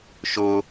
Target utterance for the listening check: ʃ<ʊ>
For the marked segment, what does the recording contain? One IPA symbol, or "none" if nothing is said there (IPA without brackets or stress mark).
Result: ʊ